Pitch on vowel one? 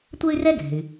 high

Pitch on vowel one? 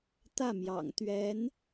falling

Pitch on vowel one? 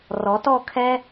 rising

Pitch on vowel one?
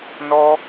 high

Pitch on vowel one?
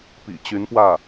low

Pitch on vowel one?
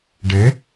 rising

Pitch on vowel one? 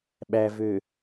low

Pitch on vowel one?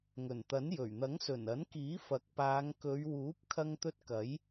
low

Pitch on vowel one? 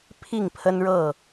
falling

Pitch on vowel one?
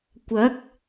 rising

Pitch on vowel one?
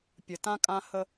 low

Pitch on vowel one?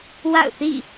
falling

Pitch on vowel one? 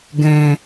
low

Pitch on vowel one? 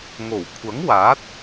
low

